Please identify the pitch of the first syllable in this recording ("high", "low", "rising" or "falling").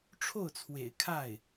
falling